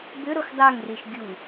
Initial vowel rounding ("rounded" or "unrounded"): rounded